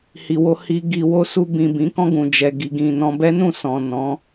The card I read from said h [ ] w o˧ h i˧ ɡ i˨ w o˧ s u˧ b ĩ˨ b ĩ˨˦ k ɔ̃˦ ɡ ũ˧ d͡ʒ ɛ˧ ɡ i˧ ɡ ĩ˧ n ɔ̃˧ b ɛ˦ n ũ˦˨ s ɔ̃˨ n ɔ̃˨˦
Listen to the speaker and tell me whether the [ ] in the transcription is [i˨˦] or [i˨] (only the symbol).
i˨